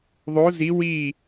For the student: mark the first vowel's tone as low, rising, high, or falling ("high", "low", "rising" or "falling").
rising